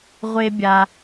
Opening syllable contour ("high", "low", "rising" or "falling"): high